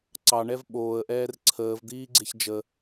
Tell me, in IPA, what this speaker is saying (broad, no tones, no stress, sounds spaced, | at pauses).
ǀ ɑ ɳ ɛ v ɓ oː ə̯ ʔ ɛː r ǀʰ əː v d̪ iː ɡ͡ǀ e ç d͡ʒ ə